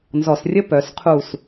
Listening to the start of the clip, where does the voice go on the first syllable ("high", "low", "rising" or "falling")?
low